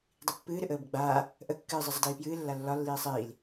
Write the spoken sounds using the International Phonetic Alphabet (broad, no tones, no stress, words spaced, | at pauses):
dˤipːɨːɾɨ ʔəːbəɡ͡baː | ʔəkːɨː zˤizˤədiːpjɨː lːalːɒ lːiːsˤiːl